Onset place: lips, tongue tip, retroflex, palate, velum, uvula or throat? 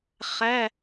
uvula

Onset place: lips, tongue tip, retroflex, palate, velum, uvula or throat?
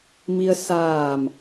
lips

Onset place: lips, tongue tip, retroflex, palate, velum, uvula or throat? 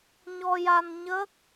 palate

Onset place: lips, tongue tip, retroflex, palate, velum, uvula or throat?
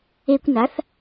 velum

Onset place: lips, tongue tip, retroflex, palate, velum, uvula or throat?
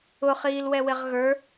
uvula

